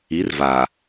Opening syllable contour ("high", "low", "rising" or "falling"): rising